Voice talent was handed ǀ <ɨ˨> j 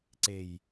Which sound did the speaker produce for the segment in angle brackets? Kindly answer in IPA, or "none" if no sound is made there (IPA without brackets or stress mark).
e˨